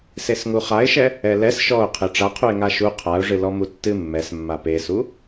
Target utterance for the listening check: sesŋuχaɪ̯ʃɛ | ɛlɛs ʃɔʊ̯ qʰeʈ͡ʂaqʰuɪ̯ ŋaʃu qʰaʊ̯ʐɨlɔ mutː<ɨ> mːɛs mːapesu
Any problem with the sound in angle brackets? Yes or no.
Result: no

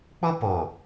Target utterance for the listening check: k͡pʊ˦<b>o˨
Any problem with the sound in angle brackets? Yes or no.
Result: yes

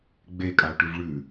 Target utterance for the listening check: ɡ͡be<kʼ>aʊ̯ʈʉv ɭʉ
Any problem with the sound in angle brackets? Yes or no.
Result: no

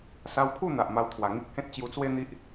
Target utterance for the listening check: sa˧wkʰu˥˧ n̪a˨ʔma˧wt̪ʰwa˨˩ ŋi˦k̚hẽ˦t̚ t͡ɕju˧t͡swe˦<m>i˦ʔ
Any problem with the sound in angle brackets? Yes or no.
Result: yes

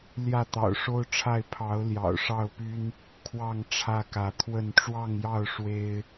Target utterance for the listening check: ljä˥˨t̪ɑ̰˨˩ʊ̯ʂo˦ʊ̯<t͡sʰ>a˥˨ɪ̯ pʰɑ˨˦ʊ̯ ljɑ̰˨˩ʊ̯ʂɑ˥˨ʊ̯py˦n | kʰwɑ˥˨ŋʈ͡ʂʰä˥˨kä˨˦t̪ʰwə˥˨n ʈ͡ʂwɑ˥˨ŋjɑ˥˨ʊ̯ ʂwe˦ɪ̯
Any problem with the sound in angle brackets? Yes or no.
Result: yes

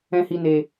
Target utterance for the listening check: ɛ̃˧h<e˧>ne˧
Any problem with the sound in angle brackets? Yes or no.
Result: yes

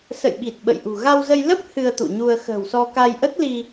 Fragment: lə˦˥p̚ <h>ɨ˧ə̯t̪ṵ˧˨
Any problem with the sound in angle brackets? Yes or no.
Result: no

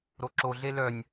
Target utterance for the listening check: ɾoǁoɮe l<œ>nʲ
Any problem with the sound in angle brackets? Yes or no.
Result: no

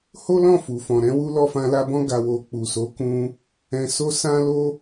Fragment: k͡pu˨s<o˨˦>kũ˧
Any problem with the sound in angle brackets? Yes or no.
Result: no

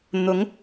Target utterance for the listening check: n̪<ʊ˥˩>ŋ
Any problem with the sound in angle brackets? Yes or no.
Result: yes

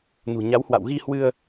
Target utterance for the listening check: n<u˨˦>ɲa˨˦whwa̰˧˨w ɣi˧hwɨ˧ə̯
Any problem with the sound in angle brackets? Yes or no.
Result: yes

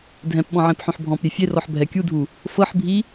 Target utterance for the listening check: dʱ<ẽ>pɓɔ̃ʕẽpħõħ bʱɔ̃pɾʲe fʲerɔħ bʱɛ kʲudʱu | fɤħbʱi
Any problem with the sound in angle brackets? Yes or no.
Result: yes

